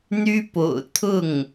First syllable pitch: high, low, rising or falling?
high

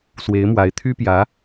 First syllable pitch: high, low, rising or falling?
rising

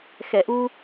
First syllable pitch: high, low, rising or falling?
low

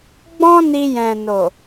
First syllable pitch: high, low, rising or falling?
high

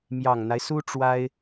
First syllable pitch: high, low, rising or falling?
low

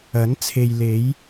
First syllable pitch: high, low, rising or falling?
rising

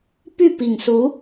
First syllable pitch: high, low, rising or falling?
falling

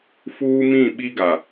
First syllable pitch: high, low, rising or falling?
high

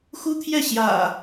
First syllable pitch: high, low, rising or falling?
high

